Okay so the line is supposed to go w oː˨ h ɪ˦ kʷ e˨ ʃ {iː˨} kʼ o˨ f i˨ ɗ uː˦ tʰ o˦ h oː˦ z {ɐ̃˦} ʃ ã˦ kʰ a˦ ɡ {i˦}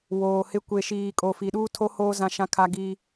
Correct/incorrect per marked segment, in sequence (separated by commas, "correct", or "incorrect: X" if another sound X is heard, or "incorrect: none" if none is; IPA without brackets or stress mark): correct, incorrect: ã˦, correct